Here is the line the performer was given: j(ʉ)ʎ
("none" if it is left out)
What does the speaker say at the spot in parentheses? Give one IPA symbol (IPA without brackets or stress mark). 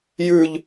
ʉ